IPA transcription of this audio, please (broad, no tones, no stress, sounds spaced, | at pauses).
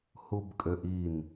h u b kʼ ø ʔ i n